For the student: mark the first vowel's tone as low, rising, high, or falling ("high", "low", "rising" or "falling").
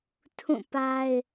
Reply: falling